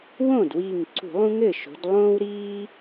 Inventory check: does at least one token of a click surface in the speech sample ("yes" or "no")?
yes